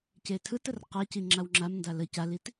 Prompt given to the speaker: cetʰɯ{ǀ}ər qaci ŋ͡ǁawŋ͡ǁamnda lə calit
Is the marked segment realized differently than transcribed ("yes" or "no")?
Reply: yes